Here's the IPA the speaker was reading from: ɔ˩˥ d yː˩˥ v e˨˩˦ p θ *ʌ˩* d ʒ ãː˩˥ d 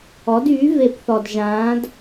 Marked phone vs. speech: incorrect: ɔ˩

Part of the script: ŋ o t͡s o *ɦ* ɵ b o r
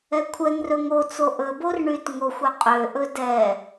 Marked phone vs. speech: incorrect: ʔ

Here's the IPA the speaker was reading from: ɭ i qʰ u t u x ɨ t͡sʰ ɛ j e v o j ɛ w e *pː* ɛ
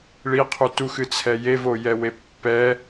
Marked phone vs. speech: correct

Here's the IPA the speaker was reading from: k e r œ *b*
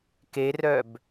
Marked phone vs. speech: correct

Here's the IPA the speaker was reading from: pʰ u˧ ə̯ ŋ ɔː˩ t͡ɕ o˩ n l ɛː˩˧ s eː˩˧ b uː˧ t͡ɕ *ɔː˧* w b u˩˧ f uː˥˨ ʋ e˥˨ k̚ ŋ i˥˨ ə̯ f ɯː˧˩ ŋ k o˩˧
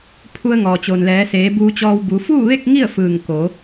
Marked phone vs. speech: correct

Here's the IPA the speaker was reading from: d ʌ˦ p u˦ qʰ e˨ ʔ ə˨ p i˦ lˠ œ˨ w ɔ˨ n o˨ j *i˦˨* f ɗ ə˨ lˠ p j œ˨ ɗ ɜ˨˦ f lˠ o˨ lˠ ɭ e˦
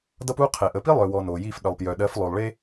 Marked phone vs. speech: correct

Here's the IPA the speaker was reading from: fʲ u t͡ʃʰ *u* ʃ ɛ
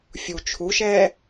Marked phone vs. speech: correct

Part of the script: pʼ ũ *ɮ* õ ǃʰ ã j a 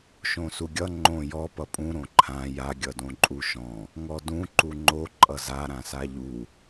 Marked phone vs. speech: incorrect: ɾ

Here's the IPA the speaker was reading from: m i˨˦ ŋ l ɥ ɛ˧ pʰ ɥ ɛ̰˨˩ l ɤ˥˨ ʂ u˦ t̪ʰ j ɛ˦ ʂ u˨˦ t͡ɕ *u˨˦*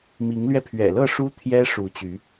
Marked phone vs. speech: incorrect: y˨˦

